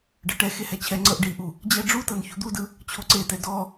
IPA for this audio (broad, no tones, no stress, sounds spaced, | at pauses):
ɖ ɤ ʈ ɛ x e h ɛ t͡ɕʰ ɛ ŋ͡ǀ ɤ ʔ ɖ i ʔ u | d͡ʑ ɛ ɖ͡ʐ u t ɤ n ç u d̪ u d ɯ | t͡ɕʰ o ǀ e t ɛ d ɔ